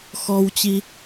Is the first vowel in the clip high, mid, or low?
mid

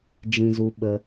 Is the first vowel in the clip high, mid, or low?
high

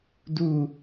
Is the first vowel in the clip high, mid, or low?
high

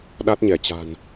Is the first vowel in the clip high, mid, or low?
low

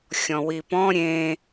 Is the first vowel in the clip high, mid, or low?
mid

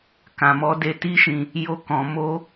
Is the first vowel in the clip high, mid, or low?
low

